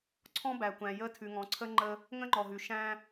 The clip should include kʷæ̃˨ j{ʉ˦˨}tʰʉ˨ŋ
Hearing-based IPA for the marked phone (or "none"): ə˦˨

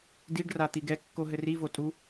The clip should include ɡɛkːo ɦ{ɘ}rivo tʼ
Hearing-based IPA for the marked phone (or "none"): ɘ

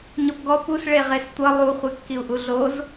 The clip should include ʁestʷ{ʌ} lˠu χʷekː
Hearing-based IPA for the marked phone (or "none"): ʌ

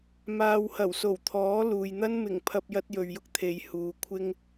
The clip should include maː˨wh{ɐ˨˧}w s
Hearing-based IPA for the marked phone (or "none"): ɐ˨˩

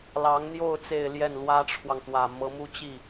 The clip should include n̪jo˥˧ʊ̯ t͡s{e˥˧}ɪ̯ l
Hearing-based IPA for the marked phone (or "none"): e˥˧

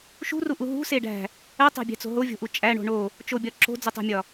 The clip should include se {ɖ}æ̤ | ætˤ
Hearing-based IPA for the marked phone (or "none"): ɖ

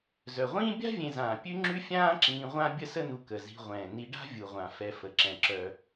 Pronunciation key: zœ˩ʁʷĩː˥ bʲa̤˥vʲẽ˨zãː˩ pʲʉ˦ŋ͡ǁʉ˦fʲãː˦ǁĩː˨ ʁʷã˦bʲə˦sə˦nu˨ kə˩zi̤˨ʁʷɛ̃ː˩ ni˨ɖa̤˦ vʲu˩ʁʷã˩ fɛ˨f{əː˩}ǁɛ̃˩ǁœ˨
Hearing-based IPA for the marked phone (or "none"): ə˩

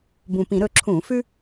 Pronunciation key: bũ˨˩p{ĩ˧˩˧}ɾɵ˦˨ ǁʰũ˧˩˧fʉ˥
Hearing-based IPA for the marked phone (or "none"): ĩ˧˩˧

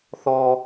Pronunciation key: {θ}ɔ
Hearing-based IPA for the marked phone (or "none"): θ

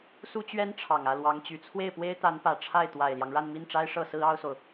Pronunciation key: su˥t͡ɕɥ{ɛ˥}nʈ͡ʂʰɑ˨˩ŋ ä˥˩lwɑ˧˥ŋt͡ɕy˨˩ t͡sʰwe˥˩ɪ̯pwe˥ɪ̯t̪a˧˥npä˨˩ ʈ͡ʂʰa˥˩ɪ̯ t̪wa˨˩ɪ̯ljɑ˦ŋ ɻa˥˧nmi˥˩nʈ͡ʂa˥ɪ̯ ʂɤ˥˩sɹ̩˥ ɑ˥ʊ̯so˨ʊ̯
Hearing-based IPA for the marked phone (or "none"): ɛ˥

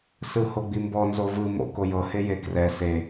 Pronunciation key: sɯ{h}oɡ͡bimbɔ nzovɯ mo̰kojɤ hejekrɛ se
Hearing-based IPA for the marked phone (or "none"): h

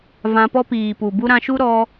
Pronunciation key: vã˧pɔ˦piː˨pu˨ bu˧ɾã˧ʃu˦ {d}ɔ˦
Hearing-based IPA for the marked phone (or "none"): ɾ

